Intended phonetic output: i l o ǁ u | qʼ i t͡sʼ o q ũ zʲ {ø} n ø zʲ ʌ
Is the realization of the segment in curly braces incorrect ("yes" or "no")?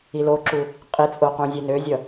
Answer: yes